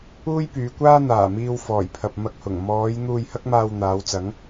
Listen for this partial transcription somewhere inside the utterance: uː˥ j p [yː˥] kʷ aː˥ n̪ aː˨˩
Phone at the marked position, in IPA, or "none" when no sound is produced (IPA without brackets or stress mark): yː˨˧